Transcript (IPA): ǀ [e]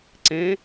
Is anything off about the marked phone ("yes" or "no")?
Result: yes